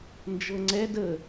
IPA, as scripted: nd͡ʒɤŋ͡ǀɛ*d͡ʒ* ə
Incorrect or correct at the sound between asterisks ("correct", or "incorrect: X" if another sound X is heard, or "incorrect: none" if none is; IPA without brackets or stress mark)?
incorrect: d